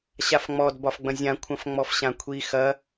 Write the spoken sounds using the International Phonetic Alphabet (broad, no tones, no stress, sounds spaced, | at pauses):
ɕ a f ŋ͡m ɔ d b ɒ f ɡ͡b ɐ̃ zʲ ã kʷʰ ɐ̃ f ŋ͡m ɔ f ɕ ã kʷʰ i x ɐ